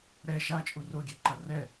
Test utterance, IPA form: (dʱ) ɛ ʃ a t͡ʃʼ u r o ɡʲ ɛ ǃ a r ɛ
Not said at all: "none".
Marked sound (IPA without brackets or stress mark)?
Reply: ɾ